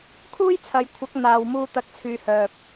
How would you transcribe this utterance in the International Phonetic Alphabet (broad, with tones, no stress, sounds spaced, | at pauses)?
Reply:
kʰ uː˥ j t͡sʰ ɐ˨ j kʷʰ ɐ˨˥ k̚ n̪ aː˨ w m uː˧ t̪ ɐ˧ k̚ t͡sʰ yː˨˧ h œː˨ p̚